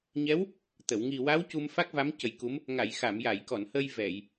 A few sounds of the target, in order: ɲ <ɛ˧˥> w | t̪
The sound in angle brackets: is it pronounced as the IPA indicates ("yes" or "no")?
yes